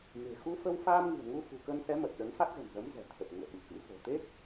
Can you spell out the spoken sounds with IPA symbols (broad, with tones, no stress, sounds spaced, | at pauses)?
m e̤˨˩ x u˧ f ə˧ w f aː˧ m ŋ ɨ̤˨˩ ə̯ ŋ u˧ f ṳ˨˩ k ə˧ n s ɛ˨˦ m ə˨˩ t̚ ɗ ə˨˦ n f a˦˥ t̚ z ə̤˨˩ n z ə˨˦ m z ɛ̤˨˩ t̪ʰ ə˨˩ p̚ ŋ ṵ˧˨ ə̯ ɓ ɨ˧˩ k ɨ̰˧˥ f o̤˨˩ t̪ e˦˥ k̚